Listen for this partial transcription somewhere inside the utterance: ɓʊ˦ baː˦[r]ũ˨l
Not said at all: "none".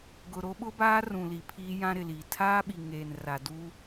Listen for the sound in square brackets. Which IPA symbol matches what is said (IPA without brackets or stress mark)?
r